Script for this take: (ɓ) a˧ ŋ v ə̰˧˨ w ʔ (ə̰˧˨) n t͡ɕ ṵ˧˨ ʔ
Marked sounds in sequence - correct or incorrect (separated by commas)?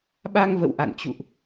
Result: correct, incorrect